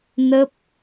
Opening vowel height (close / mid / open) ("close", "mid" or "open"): mid